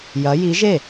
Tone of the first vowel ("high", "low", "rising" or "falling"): rising